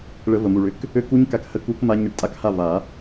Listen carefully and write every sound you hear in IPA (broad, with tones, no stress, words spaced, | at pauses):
ɭə˨˩˦ və˩mu˩ɭʏ˩˧˩k | ø˦˥ ku˦˥ɲka˧k hə˥˩ku˦˥kma˦˥ ɲɘ˧ʈtʼa˥˩kha˥˩ va˨˩˦